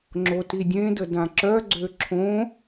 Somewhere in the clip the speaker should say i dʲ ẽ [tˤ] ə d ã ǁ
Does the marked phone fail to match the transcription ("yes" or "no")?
yes